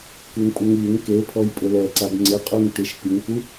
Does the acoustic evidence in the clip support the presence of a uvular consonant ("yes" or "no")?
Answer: yes